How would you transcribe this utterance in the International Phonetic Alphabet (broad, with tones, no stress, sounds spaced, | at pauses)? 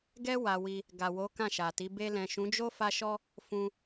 ɡ ɛ˦ w a˧ w i˧ | ɡ a˨ w o˨˦ k ã˦˨ ʃ a˨ t i˨˦ b e˧ l ɛ̃˨ ʃ ũ˨˦ d͡ʒ o˦ f a˧ ʃ ɔ˧ | f ũ˧